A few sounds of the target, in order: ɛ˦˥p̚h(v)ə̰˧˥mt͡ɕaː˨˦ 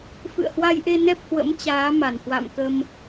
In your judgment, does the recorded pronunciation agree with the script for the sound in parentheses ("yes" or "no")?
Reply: no